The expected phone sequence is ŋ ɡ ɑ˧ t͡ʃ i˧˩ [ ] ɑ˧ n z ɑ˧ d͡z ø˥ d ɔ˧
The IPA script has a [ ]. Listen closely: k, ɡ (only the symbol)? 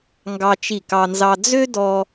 k